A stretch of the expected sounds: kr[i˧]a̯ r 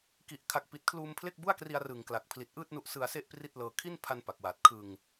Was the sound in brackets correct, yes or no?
yes